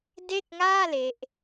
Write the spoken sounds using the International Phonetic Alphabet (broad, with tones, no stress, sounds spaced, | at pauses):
d e˥˩ k̚ ŋ aː˥˩ l e˦˥ ʔ